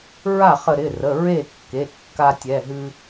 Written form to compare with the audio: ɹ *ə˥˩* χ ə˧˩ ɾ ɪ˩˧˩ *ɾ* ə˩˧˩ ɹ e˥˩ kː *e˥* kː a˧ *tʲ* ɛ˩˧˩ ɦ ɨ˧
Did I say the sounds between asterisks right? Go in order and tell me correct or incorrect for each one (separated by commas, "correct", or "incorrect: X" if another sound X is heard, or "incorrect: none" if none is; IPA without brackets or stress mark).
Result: incorrect: a˥˩, incorrect: r, incorrect: e˩˧˩, correct